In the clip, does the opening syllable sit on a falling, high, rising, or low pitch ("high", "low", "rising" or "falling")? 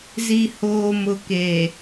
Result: low